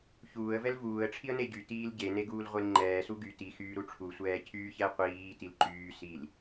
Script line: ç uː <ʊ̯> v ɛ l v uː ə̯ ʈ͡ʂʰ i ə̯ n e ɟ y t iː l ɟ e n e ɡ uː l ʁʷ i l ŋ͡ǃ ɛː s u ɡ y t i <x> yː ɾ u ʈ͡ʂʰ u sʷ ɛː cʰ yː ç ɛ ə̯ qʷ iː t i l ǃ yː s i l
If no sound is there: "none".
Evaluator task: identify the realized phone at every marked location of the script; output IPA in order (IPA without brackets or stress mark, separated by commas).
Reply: ə̯, x